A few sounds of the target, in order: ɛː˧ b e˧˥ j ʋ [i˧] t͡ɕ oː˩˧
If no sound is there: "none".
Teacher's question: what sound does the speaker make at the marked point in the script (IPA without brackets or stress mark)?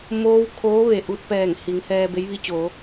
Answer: i˧